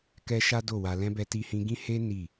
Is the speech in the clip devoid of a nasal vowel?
no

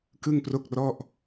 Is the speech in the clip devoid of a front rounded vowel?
yes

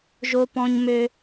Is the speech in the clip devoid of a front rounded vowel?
no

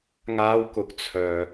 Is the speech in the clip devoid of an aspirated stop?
no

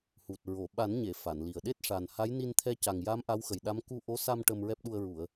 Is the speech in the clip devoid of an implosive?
no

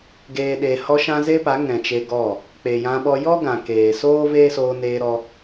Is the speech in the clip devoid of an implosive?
no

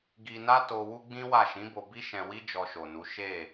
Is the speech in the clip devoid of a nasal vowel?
no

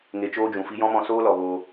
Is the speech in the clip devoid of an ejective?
yes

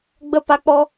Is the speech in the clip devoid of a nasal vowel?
yes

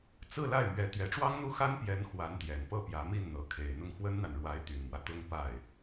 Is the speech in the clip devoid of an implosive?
yes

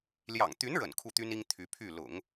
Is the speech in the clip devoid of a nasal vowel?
yes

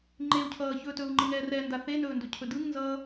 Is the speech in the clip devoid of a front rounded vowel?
yes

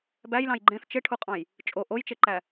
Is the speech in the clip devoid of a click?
no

